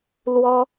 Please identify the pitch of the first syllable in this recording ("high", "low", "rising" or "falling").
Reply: high